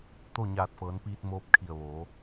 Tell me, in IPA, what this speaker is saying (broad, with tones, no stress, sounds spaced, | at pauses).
t̪ o˥˨ ɲ aː˧˩ t̚ f ɤː˩˧ n p iː˧ t̚ m oː˧ p̚ kʰ i˧˩ ə̯ ʋ oː˩˧